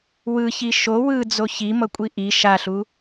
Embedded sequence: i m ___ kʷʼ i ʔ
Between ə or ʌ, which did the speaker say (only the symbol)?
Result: ʌ